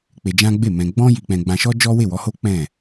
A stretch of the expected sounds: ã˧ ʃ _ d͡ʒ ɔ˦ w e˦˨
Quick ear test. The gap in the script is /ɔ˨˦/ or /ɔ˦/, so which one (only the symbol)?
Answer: ɔ˦